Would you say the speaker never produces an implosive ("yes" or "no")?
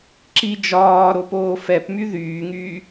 yes